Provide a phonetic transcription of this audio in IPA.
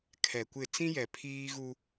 kʰ ɛ˨ kʷ ɪ˦˨ t͡s ĩ˦ j ɛ˨ pʰ iː˦ ɣ u˦

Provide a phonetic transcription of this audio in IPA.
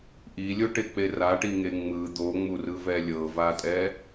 ʔ i lʲ o ʈ e k͡p e r a ʈ i ŋ e ŋ͡m ɯ d̪ o ŋ͡m u r ɯ v ɛ lʲ ɤ v a tʼ ɛ

